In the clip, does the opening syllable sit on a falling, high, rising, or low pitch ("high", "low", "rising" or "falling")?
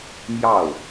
falling